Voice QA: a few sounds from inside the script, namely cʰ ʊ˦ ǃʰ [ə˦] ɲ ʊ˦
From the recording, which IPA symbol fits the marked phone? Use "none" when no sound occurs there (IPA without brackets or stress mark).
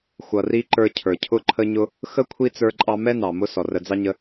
ə˦